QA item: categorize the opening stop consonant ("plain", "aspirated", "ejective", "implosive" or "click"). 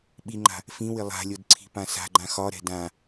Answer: implosive